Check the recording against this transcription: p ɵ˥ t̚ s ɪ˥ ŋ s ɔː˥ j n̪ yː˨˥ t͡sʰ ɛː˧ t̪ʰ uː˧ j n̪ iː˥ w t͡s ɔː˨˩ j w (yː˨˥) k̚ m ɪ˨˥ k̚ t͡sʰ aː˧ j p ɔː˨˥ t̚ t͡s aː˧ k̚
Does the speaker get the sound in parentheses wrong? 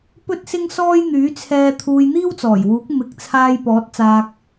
yes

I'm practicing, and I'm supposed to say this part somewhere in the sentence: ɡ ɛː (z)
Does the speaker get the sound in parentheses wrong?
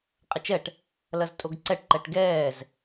no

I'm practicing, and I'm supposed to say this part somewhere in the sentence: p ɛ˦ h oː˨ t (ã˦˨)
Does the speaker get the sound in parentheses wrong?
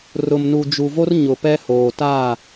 yes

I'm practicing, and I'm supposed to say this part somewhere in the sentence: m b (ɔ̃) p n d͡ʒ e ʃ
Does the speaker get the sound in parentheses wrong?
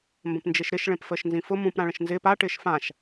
yes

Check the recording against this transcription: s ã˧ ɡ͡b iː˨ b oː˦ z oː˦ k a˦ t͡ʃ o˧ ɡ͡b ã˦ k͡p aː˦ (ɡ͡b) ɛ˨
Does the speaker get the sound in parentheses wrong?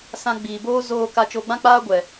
yes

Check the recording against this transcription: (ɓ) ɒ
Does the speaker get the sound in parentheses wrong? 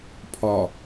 yes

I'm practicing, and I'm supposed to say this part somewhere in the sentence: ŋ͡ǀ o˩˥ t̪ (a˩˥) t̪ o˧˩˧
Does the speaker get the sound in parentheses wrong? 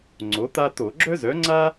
yes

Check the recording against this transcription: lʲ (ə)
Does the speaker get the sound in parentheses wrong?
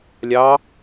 yes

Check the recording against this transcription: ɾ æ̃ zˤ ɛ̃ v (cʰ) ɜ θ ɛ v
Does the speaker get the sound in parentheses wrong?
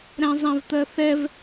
yes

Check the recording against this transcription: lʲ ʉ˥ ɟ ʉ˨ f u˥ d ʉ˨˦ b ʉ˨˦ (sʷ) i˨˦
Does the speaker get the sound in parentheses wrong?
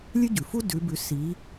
yes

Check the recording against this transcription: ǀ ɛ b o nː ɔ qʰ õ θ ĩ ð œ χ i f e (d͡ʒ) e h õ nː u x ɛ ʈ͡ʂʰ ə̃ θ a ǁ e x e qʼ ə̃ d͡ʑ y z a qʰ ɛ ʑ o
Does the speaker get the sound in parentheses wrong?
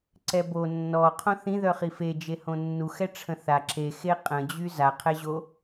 no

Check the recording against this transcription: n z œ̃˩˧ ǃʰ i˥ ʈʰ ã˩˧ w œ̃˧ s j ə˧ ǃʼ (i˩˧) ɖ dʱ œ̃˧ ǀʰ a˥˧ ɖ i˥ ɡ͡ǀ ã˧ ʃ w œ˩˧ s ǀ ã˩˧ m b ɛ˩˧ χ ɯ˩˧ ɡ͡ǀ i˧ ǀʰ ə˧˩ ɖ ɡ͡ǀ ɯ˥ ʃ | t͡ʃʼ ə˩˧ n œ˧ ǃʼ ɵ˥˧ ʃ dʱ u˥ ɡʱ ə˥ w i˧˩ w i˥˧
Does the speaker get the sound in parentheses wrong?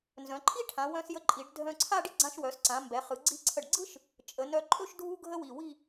no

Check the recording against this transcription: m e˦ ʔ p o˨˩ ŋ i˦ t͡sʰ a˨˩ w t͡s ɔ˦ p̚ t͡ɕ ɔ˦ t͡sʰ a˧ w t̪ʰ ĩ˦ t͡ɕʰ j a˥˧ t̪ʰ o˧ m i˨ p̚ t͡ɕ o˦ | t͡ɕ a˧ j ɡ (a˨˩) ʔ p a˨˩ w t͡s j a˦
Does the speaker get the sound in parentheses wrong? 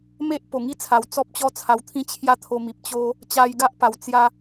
yes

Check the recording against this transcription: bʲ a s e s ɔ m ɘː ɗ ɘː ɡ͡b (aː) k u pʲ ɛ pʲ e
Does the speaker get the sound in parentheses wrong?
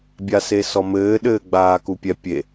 no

